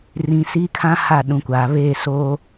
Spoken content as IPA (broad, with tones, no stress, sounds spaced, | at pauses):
r ĩ˨ s i˦ kʰ ã˦ h a˦˨ ɗ ũ˨ kʷ aː˨ β eː˦˨ s oː˦